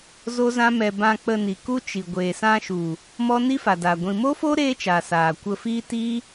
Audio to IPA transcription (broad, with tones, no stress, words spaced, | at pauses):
zo˦zã˦mɛ˧ bã˧ k͡pə˧ni˨ ku˦t͡ʃi˨ ɡʷeː˨ sã˧ʃu˨ | mɔ˦ ni˦fa˨daː˨ ɡʷĩ˨mo˦fo˦ ɾeː˦t͡ʃa˨ saː˨kʷə˧fiː˦ tiː˦